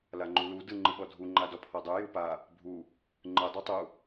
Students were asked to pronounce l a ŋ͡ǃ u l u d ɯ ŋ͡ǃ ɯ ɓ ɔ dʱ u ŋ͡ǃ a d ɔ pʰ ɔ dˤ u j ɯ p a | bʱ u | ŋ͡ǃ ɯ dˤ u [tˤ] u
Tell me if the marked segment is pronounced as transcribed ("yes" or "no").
yes